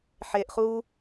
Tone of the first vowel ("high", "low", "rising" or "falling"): low